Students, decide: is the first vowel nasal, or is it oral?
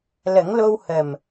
oral